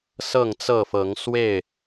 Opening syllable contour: falling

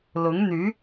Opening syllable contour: rising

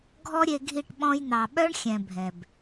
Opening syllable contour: high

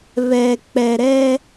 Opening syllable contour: low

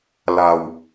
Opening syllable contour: low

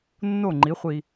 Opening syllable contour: falling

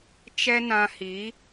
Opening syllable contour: high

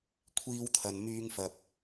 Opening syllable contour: high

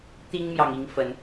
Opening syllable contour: high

